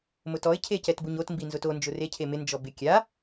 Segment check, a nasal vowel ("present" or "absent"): absent